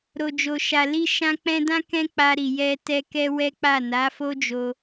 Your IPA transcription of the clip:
ɾ o˨ d͡ʒ o˨ ʃ a˨ l i˧ ʃ ã˧ k͡p ɛ̃˧ d ã˦ k ɛ̃˦ k͡p a˧ ɾ i˨ j ɛ˧ t ɛ˧ k ɛ˦ w ɛ˦ k͡p a˦˨ n a˨˦ f o˦ d͡ʒ o˧

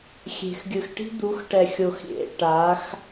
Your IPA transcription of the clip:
xʲ e̤˨ x ɡʲ ɯ˨ x ʈ i̤˦ d̪ u˨˦ x ʈ ɛ˨ xʲ o˨ x ɾʲ ḛ˦ ʈ a˨˦ x

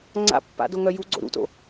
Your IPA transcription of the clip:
ŋ͡ǀ a̰ pː a̰ d o ŋ œ j u ɡ͡ǀ o̰ ɾ ṵ t o̰

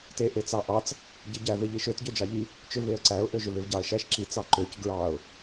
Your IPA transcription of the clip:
t e ʔ e t͡s ɑ ʔ ɑ t͡s | ɟ i ɟ æ v e ʎ i ʃ ø t ɟ ø d͡ʒ ɑ ʎ i | t͡ʃ ø v e ə̯ ǀ æ ʊ̯ ʔ ø ʒ ø v e v ɟ ɑ ə̯ ʃ æ ʃ ǁ i t͡s ɑ ǃ ø c ɡ ɹ ɑ ʊ̯

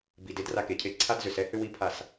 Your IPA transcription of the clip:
b i˨ d e˦ d r a˦ k e˨ cʰ e˦ ǀʰ a˦ d z ʏ˨ s ɛ˦ h ʏ˦ w i˦ pʰ a˨ s

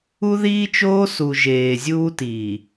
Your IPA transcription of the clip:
u˦ ð iː˦ t͡ʃ oː˦ s u˨ ʒ eː˨ zʲ uː˦ t iː˨

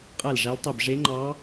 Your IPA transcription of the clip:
qʼ æ˥˧ l ʐ æ˦˥ l tˤ e˥˧ b ʐ e˦˥ ŋ͡ǃ ɑ˦˥

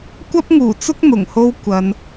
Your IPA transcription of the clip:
kʷ ɐ˥ p̚ ŋ uː˨˩ t͡s ʊ˥ k̚ n̪ ʊ˨˩ ŋ h o˥ w kʷ ɐ˨˧ n

